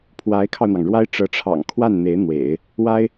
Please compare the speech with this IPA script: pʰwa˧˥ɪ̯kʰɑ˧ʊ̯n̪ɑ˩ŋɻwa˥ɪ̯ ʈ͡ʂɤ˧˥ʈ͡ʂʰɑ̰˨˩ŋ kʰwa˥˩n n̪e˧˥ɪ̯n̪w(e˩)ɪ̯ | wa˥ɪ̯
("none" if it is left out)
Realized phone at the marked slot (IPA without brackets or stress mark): ḛ˨˩˦